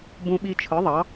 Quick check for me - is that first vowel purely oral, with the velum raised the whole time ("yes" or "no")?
no